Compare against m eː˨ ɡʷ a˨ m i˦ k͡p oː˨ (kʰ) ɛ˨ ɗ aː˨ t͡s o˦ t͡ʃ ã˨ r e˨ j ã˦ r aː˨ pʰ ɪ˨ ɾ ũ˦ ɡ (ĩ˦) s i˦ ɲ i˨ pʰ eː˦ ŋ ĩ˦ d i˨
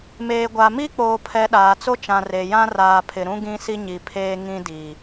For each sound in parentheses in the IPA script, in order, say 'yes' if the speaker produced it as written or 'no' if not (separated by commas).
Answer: no, yes